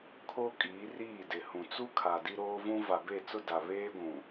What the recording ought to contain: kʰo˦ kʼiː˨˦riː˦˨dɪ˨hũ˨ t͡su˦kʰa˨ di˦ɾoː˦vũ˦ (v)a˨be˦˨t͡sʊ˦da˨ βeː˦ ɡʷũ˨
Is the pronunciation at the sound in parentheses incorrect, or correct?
correct